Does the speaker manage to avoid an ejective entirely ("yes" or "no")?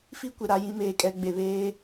no